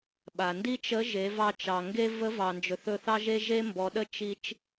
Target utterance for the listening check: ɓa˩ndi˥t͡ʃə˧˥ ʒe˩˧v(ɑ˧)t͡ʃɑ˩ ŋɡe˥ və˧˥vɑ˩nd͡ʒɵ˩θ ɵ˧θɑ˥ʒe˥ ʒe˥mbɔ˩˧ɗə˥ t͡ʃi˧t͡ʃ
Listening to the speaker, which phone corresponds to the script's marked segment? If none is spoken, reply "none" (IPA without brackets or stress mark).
ɑ˧